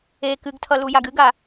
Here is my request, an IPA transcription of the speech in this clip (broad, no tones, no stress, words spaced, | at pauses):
e kɨɡtʰʌ lujaɡɨɡa